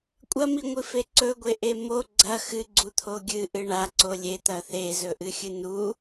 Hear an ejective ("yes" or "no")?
yes